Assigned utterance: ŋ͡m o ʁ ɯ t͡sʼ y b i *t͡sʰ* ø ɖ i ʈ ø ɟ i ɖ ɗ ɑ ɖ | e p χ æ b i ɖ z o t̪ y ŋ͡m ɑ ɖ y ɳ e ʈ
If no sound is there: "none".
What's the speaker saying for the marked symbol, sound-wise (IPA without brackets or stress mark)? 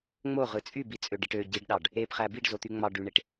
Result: t͡sʼ